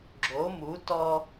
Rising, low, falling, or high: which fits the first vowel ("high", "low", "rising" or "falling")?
rising